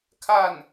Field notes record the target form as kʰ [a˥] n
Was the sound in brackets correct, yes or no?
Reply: no